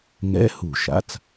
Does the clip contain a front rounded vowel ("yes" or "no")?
no